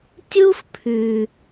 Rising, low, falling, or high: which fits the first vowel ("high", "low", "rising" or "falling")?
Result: high